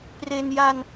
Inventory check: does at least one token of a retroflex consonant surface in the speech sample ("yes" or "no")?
no